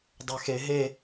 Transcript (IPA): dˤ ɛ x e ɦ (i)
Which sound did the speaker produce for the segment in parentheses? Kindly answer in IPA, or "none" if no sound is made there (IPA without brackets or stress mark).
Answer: e